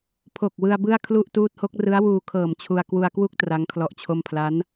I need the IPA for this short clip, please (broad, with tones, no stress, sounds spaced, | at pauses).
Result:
pʰ o˨˩ k̚ w ɯ˧ a̯ b ɯ˥˩ a̯ kʰ l u˥˩ ʔ t uː˦˥ t̚ h o˦˥ k̚ r ɯ˦˥ a̯ w uː˧ kʰ ɤː˨˩ m t͡ɕʰ u˧ a̯ k w u˧ a̯ k w u˥˩ k̚ t r a˦˥ ŋ kʰ l ɔ˦˥ ʔ t͡ɕʰ o˥˩ m pʰ l a˦˥ n